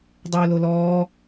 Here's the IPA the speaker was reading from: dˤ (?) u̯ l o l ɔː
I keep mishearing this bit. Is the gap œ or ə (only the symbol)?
œ